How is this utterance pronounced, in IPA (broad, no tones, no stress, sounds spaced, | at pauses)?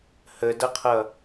h ə d ʌ qʰ ʌ